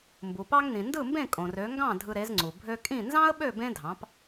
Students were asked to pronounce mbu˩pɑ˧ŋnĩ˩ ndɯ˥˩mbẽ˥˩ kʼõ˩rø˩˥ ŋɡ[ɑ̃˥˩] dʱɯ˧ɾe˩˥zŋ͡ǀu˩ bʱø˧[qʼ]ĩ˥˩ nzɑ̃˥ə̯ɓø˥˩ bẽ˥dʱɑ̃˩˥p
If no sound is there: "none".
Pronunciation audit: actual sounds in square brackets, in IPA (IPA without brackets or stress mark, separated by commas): ɑ̃˥˩, kʼ